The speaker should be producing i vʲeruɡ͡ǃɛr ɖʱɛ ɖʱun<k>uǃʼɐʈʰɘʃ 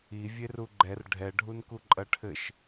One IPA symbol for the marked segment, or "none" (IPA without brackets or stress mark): k